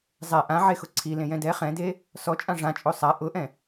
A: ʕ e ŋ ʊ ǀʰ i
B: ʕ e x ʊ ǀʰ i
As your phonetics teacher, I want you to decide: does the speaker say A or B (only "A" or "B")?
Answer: B